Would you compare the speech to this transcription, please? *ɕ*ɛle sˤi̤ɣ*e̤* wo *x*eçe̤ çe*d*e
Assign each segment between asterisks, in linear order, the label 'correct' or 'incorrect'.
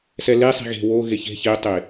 incorrect: s, correct, incorrect: ɣ, incorrect: tˤ

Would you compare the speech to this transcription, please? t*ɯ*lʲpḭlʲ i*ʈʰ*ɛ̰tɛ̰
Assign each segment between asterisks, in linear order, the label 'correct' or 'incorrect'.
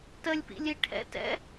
incorrect: ə, correct

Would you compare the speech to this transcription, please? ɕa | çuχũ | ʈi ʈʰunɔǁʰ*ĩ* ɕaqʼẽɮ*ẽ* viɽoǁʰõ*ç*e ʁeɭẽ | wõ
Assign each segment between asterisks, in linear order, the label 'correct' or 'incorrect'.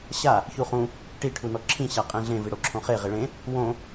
correct, correct, incorrect: χ

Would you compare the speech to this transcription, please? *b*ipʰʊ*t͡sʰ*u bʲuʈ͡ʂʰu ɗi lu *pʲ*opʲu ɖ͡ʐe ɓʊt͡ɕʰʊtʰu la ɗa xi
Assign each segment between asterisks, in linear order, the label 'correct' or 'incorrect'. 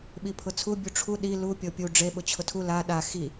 incorrect: ɓ, correct, correct

